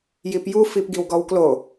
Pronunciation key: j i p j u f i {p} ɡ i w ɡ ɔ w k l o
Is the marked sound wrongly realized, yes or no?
no